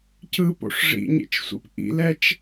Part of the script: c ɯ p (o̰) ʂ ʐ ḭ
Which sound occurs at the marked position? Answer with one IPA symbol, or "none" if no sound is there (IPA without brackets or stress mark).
o̰